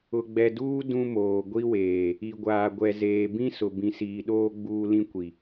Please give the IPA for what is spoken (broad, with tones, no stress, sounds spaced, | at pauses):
ʊ˨ ɡ͡b ɛ˨ d uː˦ d ũ˦ m oː˨ ɡʷ i˦ w eː˨ | i˨ ɡʷ aː˨ ɡʷ ɛ˨ z eː˨ b ĩ˦ s ʊ˨ b ĩ˨ s iː˨ ɗ oː˦ ɡ͡b uː˦ l ĩ˦ kʷ i˨